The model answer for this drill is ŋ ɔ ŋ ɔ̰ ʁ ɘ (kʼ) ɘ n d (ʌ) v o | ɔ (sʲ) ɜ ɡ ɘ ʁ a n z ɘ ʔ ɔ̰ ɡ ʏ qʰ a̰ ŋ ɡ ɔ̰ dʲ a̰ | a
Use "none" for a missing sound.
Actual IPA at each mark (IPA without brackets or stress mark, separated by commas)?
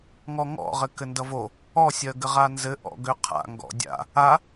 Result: k, ʌ, sʲ